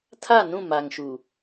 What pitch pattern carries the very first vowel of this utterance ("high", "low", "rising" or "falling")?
falling